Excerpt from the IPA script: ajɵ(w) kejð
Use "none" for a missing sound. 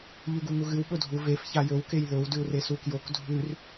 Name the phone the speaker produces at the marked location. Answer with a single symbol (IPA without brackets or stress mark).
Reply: w